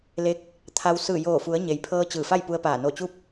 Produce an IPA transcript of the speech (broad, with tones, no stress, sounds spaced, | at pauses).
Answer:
l e˧˥ k̚ | t̪ʰ a˧ w s ɯː˧˩ j oː˧˩ f u˩˧ ə̯ ɲ e˩ j pʰ ɤː˧ t͡ɕ ɯː˧˩ f a˥˨ j p u˧ ə̯ p aː˧˩ n o˧˩ t͡ɕ u˧˥ p̚